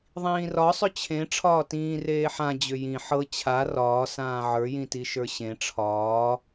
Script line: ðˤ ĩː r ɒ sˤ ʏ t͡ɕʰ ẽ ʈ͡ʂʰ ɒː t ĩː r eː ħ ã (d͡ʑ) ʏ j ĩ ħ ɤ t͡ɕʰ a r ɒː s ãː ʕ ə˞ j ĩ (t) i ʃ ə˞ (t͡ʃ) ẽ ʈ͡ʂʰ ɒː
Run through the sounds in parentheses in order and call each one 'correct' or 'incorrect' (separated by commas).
correct, correct, incorrect